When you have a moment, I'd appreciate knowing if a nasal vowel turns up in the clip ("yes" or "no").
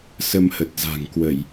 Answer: no